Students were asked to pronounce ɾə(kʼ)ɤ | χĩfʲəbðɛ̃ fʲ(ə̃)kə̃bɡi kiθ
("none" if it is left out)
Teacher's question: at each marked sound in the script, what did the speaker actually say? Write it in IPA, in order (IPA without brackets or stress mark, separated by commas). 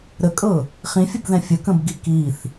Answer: kʼ, ə